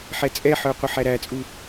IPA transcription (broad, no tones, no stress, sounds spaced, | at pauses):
ħ ɛ t͡sʼ ɛ ħ ə˞ qʷ ə ħ æ ɾ æ t͡sʼ u